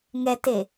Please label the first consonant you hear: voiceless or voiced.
voiced